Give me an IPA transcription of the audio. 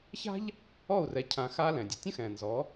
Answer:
ç a̤˥ ʎ | ɔ˥˩ u̯ r ɛ˩˥ cʰ ã˧ x a˥ l ɛ̃˩ dʲ ɨ˩ tʲ ə̃˥ x ɛ̃˩ n z ɔ˩˥

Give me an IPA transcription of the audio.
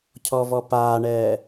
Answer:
cʰ ɔ v ɔ p aː ɳ ɛː

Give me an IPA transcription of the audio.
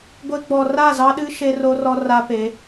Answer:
ɡʷ e˦ ɡ͡b ɔ˨ r a˦˨ z ɑ˦ ɗ ɨ˦ ʃ e˦ r o˦ r ɔ˦ r a˦ p e˨˦

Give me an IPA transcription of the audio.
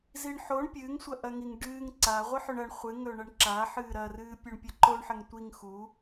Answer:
z i ɳ ħ o ɳ pʲ ɨː ŋ sʷ ɐ ʔ ɐ ŋ i ŋ ɖ ɨː ŋ ǀ a ʁʷ ɨ ħ ɵ ɳ ɐ ɳ χʷ ɨ ŋ ɵ ɳ ɐ ɳ ǁ a ħ ɨː ɾ ɐ r ɨː pʲ ɵ ɳ pʲ ɐ ǃ o ɳ ħ ɐ ŋ tʷ i ŋ x u

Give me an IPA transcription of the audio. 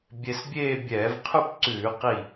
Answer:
bʲ e˧ s bʲ eː˥˧ bʲ ɛː˧˩˧ v qʰ ʉ˥˧ p ǀ ʉː˧˩˧ q i˧˩

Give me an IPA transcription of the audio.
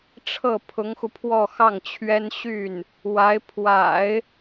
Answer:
ʈ͡ʂʰ ɤ˥˩ pʰ ʊ˧˥ ŋ x u˧ pʰ w ɔ˥˧ x ɑ˥˩ ŋ t͡ɕʰ ɥ ɛ˥ n ɕ y˥˩ n | w a˧˥ ɪ̯ pʰ w a̰˨˩˦ ɪ̯

